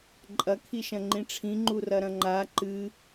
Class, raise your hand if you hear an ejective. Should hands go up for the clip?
yes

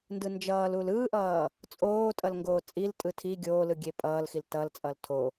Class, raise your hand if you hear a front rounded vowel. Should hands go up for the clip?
no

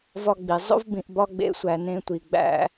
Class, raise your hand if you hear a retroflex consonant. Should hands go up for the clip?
no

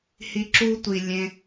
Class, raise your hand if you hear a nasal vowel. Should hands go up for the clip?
yes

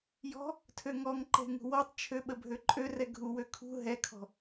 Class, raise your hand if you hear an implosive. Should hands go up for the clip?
yes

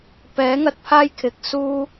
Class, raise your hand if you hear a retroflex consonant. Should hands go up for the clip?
no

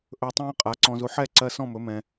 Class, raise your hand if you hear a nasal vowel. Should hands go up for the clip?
yes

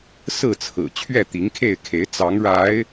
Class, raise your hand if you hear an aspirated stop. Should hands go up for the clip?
yes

